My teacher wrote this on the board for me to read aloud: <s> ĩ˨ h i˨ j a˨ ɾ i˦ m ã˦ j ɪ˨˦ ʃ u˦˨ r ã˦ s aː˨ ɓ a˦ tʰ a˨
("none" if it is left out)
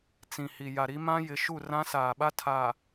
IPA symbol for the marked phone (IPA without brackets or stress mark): t͡s